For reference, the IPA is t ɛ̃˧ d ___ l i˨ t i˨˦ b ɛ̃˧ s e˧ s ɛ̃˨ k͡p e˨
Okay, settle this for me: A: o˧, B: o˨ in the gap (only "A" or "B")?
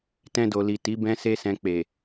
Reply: B